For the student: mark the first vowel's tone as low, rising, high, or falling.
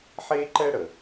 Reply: high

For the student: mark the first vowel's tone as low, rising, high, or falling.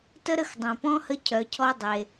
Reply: high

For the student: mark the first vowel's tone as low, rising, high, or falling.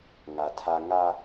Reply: low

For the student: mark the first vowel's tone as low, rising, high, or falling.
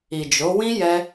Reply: low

